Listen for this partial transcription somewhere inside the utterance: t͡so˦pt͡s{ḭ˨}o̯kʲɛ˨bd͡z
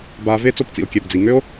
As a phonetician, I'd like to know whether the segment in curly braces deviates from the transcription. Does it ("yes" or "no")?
no